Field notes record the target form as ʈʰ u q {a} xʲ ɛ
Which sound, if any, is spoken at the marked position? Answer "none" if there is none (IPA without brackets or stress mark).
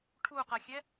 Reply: ɐ